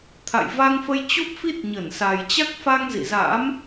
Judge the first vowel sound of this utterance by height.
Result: low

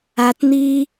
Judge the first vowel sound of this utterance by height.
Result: low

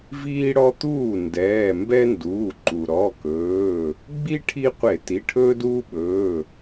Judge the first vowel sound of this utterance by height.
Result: high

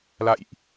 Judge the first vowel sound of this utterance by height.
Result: low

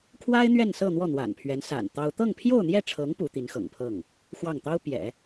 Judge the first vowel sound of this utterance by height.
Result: low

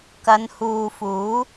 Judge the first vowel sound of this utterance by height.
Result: low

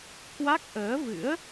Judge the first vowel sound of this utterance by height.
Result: low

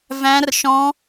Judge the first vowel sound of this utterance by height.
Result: low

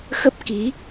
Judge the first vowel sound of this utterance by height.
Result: mid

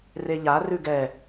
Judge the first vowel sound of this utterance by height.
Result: mid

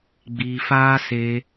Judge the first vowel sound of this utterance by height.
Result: high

